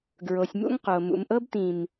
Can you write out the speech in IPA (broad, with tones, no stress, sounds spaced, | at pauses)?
ɡ ɹ o˨ sʲ m ṵ˦ ŋ q o˨ m ṵ˨ m ʔ ɤ˦ b t ĩ˨ m